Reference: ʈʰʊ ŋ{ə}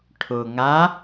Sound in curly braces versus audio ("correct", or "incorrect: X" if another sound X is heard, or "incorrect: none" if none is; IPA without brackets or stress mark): incorrect: a